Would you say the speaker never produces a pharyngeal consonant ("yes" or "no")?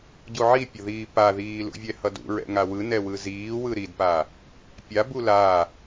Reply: no